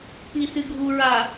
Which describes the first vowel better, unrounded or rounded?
unrounded